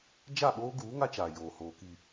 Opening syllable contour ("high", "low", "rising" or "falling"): falling